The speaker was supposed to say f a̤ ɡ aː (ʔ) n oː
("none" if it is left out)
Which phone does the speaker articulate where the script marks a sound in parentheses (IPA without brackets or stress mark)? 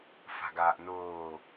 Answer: ʔ